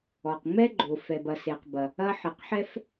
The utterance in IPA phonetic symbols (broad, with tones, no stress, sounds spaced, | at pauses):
ɔ˩ q ŋ͡m ɛ˥ ɡ͡ǃ o˩ f ɛ˩ b ɐ˩ s e˩ q b ɐ˩ | ɐ˥ ħ ɨ˩ q ħ ɛ˥ f